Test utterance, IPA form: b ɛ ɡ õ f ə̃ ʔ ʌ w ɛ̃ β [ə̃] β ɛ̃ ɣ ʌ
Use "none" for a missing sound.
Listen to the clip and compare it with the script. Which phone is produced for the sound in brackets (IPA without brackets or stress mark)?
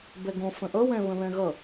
ə̃